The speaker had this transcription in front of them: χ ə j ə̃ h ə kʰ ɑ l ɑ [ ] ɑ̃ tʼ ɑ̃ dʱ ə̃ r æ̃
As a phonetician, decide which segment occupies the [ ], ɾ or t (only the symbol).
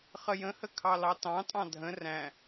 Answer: t